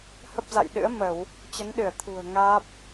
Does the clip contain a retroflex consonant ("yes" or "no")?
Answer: no